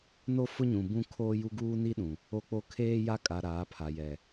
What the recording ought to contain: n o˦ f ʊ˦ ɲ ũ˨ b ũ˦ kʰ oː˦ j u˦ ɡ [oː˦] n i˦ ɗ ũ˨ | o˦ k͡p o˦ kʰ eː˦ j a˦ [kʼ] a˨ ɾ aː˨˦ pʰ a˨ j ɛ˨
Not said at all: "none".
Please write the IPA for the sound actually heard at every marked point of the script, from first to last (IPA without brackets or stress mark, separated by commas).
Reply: uː˦, kʼ